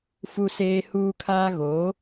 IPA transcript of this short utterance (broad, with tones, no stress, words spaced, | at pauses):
fu˦seː˦huː˦kʰaː˦ ɣoː˨˦